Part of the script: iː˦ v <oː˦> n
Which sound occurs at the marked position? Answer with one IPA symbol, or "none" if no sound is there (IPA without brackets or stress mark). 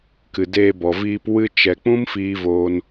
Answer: oː˦